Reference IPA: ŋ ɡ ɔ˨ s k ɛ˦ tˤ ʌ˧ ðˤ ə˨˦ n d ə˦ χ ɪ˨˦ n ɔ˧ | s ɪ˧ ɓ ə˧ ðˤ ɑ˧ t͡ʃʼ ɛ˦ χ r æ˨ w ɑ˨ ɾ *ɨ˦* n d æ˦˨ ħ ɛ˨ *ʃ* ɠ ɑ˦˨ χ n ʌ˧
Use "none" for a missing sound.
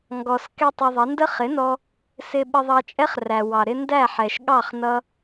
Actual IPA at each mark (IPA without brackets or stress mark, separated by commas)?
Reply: ɪ˦, ʃ